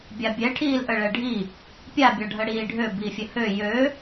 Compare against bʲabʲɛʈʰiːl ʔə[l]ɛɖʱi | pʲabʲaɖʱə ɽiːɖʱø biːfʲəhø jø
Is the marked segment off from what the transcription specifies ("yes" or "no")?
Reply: yes